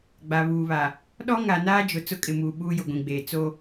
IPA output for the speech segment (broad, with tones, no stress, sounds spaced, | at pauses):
ɡ͡b a˨ β uː˨ β a˨ | ɗ ɔ˦ ŋ a˨ n aː˦ d͡ʒ ʊ˨ t͡s ʊ˦ kʼ ɪ˨ m uː˨ ɓ uː˦ j ʊ˨ ɡʷ ĩ˨ ɡ͡b eː˨ t͡s o˦